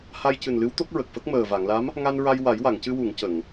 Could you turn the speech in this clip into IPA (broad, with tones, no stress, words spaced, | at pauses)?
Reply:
ha˧jcɨ˨˩nlɨ˧˥w t̪o˦˥k̚ɹə˨˩k̚fə˦˥k̚ məː˨˩va˨˩˨ŋla˧˥m | ŋa˧nɹa˧j wa˨˩˦jwa˨˩˨ŋcɨ˧wu˨˩˨ŋ cə˨˩˨ŋ